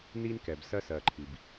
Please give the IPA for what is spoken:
n i˦ n k ɛ˨ b s ɜ˦ s ɜ˨ ǃʰ i˨ b

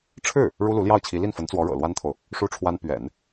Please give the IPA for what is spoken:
ʈ͡ʂʰ ɻ̩˥˩ | ɻ u˥ l u˧˥ l j ɑ˥˩ ʊ̯ t͡ɕʰ i˧˥ l i˥˩ n f ə˧˥ n t͡s w ɔ˧˥ ɻ ɤ̰˨˩ l w a˥ n t̪ʰ o˨ ʊ̯ | ʂ u˥ ʈ͡ʂʰ w a˥ n p ɥ ɛ̰˨˩˦ n

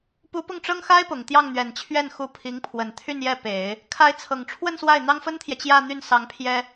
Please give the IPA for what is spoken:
p u˧˥ p ʊ˥˩ ŋ ʈ͡ʂ ɤ˥ ŋ x a˥ ɪ̯ p ʊ˨˩ ŋ t̪ j ɑ˥˩ ŋ n̪ ɥ ɛ˨˩ n t͡ɕʰ ɥ ɛ˥˩ n x u˧˥ pʰ i˧˥ ŋ pʰ w ə˨˩ n t̪ʰ y˥˧ n j ɛ˥˩ p e˨˩˦ ɪ̯ | kʰ a˧˥ ɪ̯ t͡sʰ ɤ˨˩ ŋ ʈ͡ʂʰ w ə˥˧ n s w a˥˩ ɪ̯ n̪ ɑ˥ ŋ f ə˥ n t̪ʰ j ɛ˨ t͡ɕ j ä˥˧ n̪ y˥˩ n s ɑ˧˥ ŋ pʰ j ɛ˥

